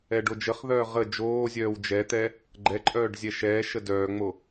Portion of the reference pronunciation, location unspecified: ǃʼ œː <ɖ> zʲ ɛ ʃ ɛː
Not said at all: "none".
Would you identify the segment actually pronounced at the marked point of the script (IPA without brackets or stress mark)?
ɖ